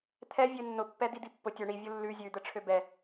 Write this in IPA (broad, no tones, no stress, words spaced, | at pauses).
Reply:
t̪ʰɛ vʲønːʊpːɛ d̪id̪ipːʊ tʲʊ ɳi vʲʊlːʉ zʲʉd̪ə ʈ͡ʂʰøbɛ